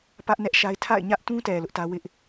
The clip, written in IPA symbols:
pä˦ʔnɛ˦ʔʃa˦ɪ̯ tʰa̰˦˨ɪ̯ɲä˦ʔtũ˦tɛ˨ lʊ˦ʔtä˦ wɪ˦ʔ

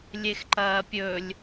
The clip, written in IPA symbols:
lʲexǃɐːpʲɵlʲ

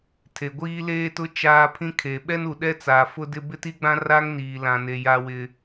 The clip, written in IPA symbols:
tʰe˨ɡʷiː˦leː˦tʊ˦ t͡ʃaː˦pʰĩ˦kʰe˨ ɓɛ˦nu˨ɗɛ˦t͡saː˨ fʊ˦dɪ˦ bɪ˦ti˦ɡ͡bã˦ ra˦ŋniː˨lã˨ne˨ ja˦wɪ˦

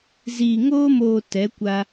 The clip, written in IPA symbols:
ziː˨ŋoː˧moː˨ tɛ˨˦ kʷa˧

